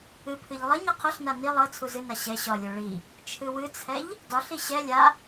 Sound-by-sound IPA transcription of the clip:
ɨ pʰ ɨ ʎ lˠ ʌ ɲ ʌ qʰ ʌ ɬ n a n i lˠ ʌ t͡sʰ u z ɨ n a ɕ ɛ ɕ ɒ lʲ o ɭ i | t͡ʃʰ ɨ w ɨ t͡sʰ ɛ ʎ | d ɒ ɬ i ɕ ɛ lʲ a

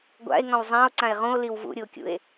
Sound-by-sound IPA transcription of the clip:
ɡʷ a̰ e̯ ŋ ɔ̃ w zˤ ã o̯ ǀ ã e̯ ʁ ũ o̯ l i w v ṵ ɾʲ u o̯ kʲ ṵ e̯

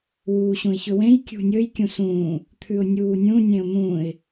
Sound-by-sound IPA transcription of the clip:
w uː ɕ ũ ɪ̯ ç ɵ w ẽ j kʲ ṳ nʲ ɵ j kʲ ũ s ũː | t̪ʰ ʉ ʊ̯ nʲ uː nʲ ũ nʲ ẽ ʊ̯ n̪ ũ ɪ̯

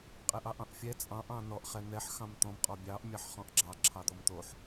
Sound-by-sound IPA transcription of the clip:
qʼ ɛ ʔ ɑ ʔ ɑ̃ ʔ fʲ ɛ t͡sʼ ɑ̃ ʔ ɑ̃ n ɔ ʔ χ ɛ n̪ ɛ ħ x ɑ̃ m t̪ ɔ̃ m qʼ ɔ bʲ ɑ ʔ mʲ ɑ ħ χ ɔ̃ ʔ ɡ͡ǁ ɑ ǁʰ ɑ d̪ ɔ m t̪ o ħ

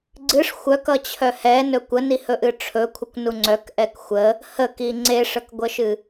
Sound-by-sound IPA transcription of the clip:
ɡ͡ǀ ɨ ʂ xʷ œ k ʌ t͡ɕʰ œ h ɛ n ɵ kʷ ə n i h ɵ ʔ ɨ ʈ͡ʂʰ ɵ kʷʰ ə kʷ n u ŋ͡ǀ œ k ʔ ɛ k xʷ ə | h ə k i ŋ͡ǀ e ʂ ə k ɡʷ ə ʃ ɨ

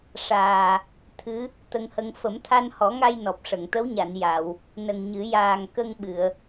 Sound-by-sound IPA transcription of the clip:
ʂ aː˨˩ | t̪ʰ ɨ˧˥ | t̪ ə˧ ŋ h ə˧ ŋ f ə˨˩˦ m t̪ʰ a˧ n h ɔ˨˩˦ ŋ a˧ j n ɔ˨˩ p̚ ʂ ə˨˩˨ ŋ t̪ ə˧˥ w ɲ a˨˩˨ n j a˨˩˨ w | n ə˨˩ ŋ ɲ ɨ˨˩˦ j aː˨˩ ŋ k ə˧ ŋ ɓ ɨ˨˩˨ ə̯

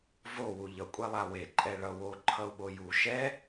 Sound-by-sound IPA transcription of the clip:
v o w u ʎ ʌ kʷʼ ɛ lˠ a w e ǃʼ ɛ ɭ ʌ w o ǃʰ ʌ u̯ ɓ o j u ʃ ɛ

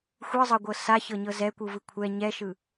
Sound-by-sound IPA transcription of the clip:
xʷ ɯ zˤ ɤ ɡʷ ɤ s a ç ɤ ɲ ɤ z ɛ kʷ ɯ v ɯ kʷʰ ɛ ɲ ɛ ʃ ɯ

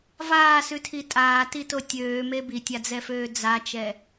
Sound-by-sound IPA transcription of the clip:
v aː s ʉ tʰ i tʼ aː t i t o tʲ øː m e b i tʲ a d͡z ɛ f øː d͡z a t͡ʃ ɛ

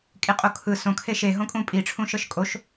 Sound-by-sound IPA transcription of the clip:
kʼ i qʼ o kʰ ɯ s õ kʰ e ʃ e ɦ õ kʼ ũ pʼ i ʈ͡ʂʰ ũ ʃ ɤ ʃ kʼ o ʃ

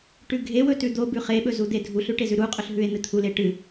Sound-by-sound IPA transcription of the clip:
ʈ ʉ ɡʱ e w ɵ t ʉ d̪ o b ʉ χ e ɓ ɵ z u d̪ e dʱ u ɬ ʉ ʈ e z ʉ ɾ u qʼ ɵ ɬ ɦ ʉ e̯ n̪ ɨ t̪ʰ u l e ʈ ɨ

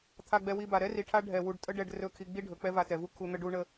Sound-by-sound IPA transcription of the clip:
t̪ʰ a˧ ɡ͡b ɛ˧ w i˧ b a˨ ɾ ɛ˦ r i˨ ʈʰ a˦ ɖʱ ɛ˧ w u˧ ɖ tʼ ə˦ ɖ ɛ˧ ɖ r ɵ˦˨ kʰ i˧ ɡ͡b i˦ ɖʱ ɵ˨ k͡p ɛ˦ v a˧ t ɛ˨ v u˦ kʰ u˧ n̪ ə˦ ɖ u˦ ɳ ə˦

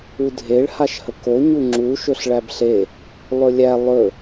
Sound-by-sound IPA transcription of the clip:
u dʱ e ɭ h a ʃ h ə k o ɲ u ŋ͡ǁ u ʃ ɵ ɬ ɭ æ b ɬ e | lˠ ɵ lʲ æ lˠ ɵ

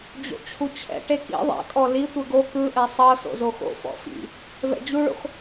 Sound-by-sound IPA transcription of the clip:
d͡ʑ o̰ t͡ɕʰ u t͡ɕʰ ɛ̰ ʈ e k ḭ ðˤ ɛ̰ kʼ ɔ l i tʷ ɯ ɡ o k ɯ ʔ ɛ sˤ ɤ s o̰ z o x o̰ f ɔ̰ f ḭ | v ɛ̰ d͡ʑ u ɭ o̰ x

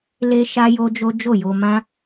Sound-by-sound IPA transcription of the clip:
l e˦ ʃ a˦ j o˦ d͡ʒ o˦ d͡ʒ o˦˨ j o˧ m ã˦

